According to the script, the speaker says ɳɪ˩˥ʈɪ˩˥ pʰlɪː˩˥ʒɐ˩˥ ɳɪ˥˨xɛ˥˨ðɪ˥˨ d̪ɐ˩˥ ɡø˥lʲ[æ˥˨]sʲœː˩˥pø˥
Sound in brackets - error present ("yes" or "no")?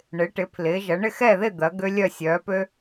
yes